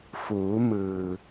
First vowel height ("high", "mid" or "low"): high